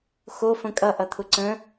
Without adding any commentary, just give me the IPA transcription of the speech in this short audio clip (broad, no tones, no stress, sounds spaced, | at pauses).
x o f ə̃ kʼ ʌ ʔ ʌ t̪ʰ ʊ ǀ ə̃